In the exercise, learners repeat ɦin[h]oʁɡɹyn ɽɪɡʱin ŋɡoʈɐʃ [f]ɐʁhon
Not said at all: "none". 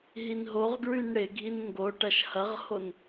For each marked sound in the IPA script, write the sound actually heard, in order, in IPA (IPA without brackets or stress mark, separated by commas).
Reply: ɦ, h